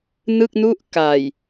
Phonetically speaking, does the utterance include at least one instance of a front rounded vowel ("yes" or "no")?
no